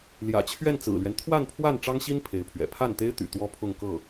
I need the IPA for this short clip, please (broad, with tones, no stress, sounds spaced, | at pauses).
l j ä̰˨˩ t͡ɕʰ ɥ ɛ˥˩ n t͡s ɹ̩˨˩ l ɥ ɛ˦ n t̪ʰ w a˥˧ n pʰ w a˥˩ n ʈ͡ʂ ɑ˥ ŋ ɕ i˥ n pʰ e˧˥ ɪ̯ pʰ ɥ ɛ̰˨˩ pʰ a˥˩ n t̪ e˥ ɪ̯ t̪ y̰˨˩ t̪ w ɔ˥ pʰ ʊ˥˧ ŋ k ɤ˥˩